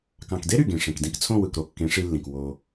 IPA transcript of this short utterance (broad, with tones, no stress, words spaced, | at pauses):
kɑ̃˨kde˦ɾy˨ ɡẽ˨ʂẽ˨k dĩ˧kt͡sʰõ˦˨wɯ˨k ɾo˧kːẽ˨˦ʂi˧lːĩ˨k wo˧